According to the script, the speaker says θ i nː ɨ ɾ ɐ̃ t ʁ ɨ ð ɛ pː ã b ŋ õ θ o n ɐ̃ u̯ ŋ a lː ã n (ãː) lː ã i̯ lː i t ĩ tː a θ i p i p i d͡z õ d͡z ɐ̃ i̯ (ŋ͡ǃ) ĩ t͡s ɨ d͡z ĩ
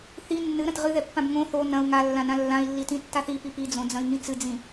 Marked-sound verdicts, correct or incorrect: incorrect: ã, incorrect: ŋ

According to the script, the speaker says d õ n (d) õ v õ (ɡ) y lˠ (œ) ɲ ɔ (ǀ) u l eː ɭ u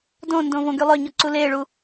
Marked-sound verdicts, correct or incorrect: correct, correct, correct, correct

